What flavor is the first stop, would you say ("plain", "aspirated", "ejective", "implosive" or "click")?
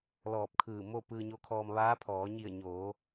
plain